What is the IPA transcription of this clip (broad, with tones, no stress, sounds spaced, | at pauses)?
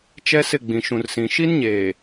t͡ʃ ɛ˦ s ɪ˦˨ ɡ͡b ĩ˨ ʃ ũ˨ r s ĩ˨ ʃ i˦ n ɲ eː˨